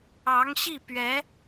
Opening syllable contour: rising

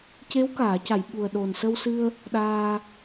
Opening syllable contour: rising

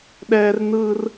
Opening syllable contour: high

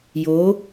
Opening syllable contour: rising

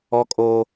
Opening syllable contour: high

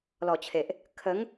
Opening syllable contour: low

